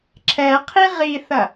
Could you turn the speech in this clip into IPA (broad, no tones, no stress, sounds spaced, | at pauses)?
ǁʰ ɛ qʰ i ʁ i θ ɐ